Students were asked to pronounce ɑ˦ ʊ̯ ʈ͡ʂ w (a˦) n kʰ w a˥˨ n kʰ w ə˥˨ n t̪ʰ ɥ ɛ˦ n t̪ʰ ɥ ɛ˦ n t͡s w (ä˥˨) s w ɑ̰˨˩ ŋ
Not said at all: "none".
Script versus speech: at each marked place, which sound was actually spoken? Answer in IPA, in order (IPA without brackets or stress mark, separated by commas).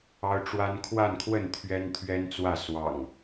a˦, ä˥˨